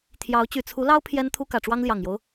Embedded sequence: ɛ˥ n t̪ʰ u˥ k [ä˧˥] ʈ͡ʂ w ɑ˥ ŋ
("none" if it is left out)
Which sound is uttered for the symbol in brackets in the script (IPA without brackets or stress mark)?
ä˨˩